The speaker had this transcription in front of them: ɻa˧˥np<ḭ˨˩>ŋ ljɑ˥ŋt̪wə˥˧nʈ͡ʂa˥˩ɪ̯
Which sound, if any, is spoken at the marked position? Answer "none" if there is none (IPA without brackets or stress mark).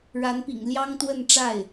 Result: ḭ˨˩